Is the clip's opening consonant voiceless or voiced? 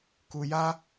voiceless